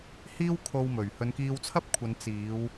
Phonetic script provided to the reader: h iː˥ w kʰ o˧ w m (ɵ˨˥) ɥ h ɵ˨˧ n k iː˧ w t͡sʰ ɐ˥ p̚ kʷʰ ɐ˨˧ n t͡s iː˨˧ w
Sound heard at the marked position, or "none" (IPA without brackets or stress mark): ɵ˨˩